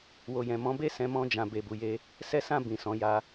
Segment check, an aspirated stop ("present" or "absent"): absent